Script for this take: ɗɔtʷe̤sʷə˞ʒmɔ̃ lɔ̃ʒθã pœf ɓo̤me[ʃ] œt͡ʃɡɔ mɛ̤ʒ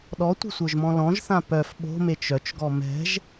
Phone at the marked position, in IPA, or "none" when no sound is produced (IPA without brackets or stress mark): t͡ʃ